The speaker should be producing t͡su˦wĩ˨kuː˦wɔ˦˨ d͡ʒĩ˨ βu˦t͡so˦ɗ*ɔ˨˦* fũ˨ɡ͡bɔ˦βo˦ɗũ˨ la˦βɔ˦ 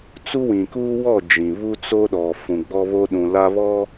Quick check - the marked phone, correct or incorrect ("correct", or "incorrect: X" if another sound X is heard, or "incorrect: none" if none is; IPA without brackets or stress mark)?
incorrect: ɔ˨